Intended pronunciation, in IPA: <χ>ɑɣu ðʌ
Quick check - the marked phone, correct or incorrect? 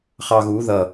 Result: correct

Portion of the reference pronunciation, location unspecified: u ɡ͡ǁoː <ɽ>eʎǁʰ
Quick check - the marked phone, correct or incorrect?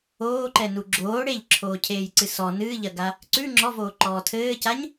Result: correct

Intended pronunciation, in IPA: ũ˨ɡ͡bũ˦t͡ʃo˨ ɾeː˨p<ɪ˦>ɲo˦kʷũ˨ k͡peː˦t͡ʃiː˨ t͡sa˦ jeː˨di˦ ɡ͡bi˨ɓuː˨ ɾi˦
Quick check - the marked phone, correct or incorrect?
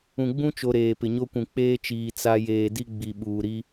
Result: incorrect: ɪ˨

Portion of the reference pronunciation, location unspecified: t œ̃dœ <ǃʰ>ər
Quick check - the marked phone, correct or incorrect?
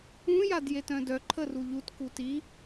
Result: correct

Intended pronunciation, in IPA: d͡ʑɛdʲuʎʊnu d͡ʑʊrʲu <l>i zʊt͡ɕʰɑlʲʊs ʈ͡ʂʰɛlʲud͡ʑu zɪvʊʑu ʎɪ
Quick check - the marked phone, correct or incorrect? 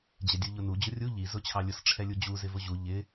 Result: incorrect: ʎ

